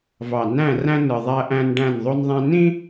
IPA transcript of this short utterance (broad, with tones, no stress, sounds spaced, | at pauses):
v ɑ˨ n æ̃˦˨ r æ̃˦ n ɯ˨ ðˤ æ˦ ʔ æ̃˦ n ɖ æ̃˦˨ n ðˤ o˦ n ðˤ æ̃˦ n ĩ˦